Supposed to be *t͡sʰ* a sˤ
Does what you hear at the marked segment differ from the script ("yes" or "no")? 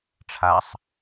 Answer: yes